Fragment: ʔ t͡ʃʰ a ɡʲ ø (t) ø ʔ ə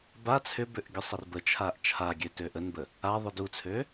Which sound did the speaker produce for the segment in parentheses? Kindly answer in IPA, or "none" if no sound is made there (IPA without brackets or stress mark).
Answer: t